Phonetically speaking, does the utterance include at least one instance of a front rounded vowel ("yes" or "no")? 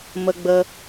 no